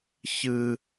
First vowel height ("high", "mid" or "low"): high